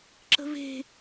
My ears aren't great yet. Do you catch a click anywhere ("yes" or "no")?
yes